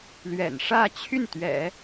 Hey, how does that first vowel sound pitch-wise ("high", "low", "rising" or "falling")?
low